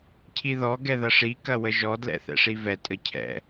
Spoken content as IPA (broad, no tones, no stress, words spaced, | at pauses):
cʰiðɔ ɡɛðɐʂi kɐwəʒɔ dlɛ̰θɛ̰ʂivɛ tʼəcʰɛ̰